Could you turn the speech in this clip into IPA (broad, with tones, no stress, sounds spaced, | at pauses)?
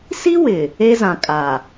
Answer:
s i˦ w ɪ˨ | e˦ z ã˨ kʼ a˨